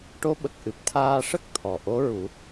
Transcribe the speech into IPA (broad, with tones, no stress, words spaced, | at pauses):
ʈo˧˥ɓə˨˩k̚ʔɨ˨˩p̚ t̪ʰaː˧ʂə˦˥k̚t̪ʰɔ˨˩ ʔo˧˥ɹu˨˩˦